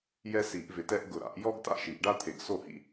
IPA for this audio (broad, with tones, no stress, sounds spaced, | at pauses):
j ɛ˥ s i˨˩˦ ʔ v ɪ˨˩˦ t ɛ˥ ʔ ɡ ʊ˨˩ ɾ a̰˨˩˦ ʔ j ɔ˥ ɡ t a̰˥˩ ʃ i˨˩˦ ʔ ɖ a˥ t̪ʰ e˨˩ ɡ s o˥˩ h ḭ˥